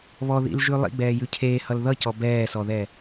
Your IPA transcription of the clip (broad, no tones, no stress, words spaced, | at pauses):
βɔðḭlʒʉ lˠḭɡ͡bɛːjʉ cʰeːhʌl ðʌcɔ bɛːsɔðɛ